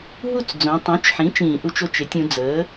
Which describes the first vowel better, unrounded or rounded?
rounded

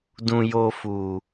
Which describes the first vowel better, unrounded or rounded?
rounded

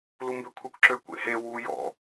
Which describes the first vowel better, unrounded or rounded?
rounded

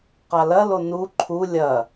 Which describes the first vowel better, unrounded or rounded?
unrounded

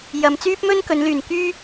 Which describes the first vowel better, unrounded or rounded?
unrounded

